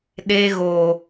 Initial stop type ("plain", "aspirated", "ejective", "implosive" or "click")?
implosive